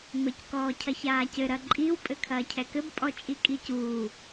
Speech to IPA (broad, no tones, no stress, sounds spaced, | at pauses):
m ɘ c k ɔː cʰ ɐ ç aː c ɘ ɾ ɐ ǃʼ i w pʼ ɘ kʰ ɐː cʰ ɛ k ɘ b pʼ ɔ t͡ʃʼ i kʼ i c uː